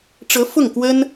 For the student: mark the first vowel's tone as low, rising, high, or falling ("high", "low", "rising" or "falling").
rising